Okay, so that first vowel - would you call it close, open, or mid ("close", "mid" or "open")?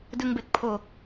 close